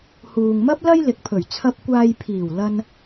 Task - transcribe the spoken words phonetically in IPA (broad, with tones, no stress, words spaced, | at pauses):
huː˨ŋmɐ˥p̚lɐ˥j lɪ˨k̚pʰɵ˨˩ɥ t͡sʰɐ˧p̚kʷaː˧jpʰiː˨˩w lɐ˧n